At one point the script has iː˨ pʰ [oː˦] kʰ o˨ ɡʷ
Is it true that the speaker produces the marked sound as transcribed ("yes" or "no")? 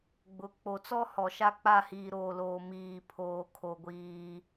no